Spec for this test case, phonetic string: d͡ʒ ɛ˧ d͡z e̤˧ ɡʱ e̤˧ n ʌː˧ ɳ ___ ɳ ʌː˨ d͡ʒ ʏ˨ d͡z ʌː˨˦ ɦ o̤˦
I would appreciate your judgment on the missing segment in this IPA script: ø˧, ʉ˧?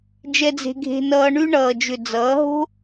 ʉ˧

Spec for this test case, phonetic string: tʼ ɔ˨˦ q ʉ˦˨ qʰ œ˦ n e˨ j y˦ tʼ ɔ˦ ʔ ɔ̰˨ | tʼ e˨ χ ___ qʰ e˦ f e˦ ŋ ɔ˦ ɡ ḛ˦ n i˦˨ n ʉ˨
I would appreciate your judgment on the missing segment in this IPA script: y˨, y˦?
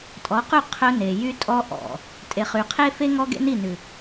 y˨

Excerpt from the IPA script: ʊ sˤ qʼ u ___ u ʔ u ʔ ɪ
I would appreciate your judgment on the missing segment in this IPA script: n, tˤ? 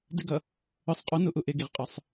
n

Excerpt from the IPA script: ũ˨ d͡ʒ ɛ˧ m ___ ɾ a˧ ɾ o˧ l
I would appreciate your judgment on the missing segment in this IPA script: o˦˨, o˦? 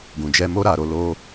o˦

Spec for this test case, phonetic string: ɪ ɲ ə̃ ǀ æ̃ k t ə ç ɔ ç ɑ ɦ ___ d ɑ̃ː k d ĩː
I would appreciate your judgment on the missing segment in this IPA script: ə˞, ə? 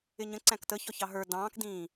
ə˞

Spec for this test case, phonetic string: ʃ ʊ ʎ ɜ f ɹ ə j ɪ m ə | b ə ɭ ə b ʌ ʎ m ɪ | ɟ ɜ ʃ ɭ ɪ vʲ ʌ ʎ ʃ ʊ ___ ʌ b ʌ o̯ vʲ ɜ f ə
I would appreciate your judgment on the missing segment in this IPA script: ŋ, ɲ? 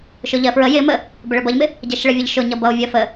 ɲ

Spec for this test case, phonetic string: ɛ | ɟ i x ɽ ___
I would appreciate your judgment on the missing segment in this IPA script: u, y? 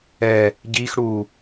u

